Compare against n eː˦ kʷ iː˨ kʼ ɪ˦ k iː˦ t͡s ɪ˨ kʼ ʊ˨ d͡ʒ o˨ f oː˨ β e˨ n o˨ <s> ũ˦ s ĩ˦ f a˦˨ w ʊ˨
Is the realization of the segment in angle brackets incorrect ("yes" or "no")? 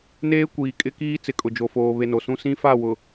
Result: no